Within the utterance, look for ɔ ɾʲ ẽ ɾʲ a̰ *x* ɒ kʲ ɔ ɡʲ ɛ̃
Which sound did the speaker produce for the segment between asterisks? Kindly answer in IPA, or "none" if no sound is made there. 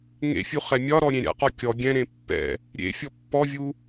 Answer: q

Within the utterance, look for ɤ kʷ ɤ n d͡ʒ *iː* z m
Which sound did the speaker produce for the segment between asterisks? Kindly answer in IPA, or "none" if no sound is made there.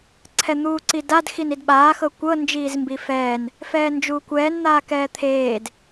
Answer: iː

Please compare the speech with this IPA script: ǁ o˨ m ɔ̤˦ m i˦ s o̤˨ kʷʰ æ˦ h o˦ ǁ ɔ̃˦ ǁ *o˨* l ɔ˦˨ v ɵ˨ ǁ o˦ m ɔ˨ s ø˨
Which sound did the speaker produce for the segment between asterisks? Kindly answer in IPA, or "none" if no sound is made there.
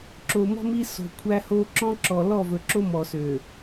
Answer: ɔ˨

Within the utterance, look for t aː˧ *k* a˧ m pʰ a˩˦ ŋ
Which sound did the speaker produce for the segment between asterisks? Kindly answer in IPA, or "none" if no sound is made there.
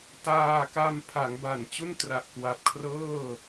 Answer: k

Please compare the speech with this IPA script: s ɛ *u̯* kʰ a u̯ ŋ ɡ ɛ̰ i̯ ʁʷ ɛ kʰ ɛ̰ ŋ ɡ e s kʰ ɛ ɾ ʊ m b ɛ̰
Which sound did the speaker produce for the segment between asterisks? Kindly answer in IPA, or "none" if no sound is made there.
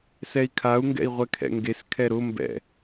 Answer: i̯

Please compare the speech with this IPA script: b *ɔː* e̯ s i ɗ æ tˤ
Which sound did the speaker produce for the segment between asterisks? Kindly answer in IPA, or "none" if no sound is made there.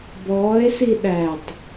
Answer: ɔː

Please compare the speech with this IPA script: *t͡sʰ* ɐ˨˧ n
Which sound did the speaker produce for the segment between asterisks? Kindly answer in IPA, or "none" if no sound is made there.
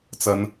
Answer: t͡s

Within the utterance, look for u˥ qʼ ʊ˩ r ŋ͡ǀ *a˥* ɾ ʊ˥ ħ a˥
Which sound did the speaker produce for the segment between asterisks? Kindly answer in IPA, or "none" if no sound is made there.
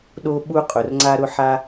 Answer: a˥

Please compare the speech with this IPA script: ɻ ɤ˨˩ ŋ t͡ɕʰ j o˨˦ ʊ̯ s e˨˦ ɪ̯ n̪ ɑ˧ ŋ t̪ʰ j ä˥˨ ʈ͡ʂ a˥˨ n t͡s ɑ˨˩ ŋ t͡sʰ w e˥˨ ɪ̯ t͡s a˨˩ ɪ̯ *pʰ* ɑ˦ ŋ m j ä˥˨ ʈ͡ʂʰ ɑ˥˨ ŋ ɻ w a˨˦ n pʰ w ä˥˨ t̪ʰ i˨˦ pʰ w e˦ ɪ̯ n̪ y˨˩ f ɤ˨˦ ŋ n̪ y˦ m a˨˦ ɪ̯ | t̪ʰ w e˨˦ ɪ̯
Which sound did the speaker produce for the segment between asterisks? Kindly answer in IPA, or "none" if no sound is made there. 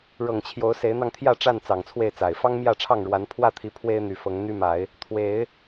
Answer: f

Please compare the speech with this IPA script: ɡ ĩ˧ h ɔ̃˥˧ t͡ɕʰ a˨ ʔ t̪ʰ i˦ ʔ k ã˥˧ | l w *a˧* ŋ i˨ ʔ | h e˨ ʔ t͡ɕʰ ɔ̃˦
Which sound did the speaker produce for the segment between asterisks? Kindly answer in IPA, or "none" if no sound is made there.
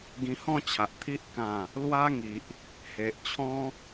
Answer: a˦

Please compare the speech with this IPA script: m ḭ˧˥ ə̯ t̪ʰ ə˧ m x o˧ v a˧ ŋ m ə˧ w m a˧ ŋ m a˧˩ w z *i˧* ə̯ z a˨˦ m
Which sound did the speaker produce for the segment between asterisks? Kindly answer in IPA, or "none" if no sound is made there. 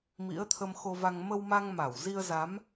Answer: i˧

